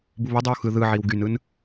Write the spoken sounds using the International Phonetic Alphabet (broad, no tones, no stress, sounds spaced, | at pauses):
b u β o dˤ ɯ w x ɯ ð ɯ ʕ i w ɡ y n ɯ n